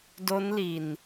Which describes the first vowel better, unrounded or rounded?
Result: rounded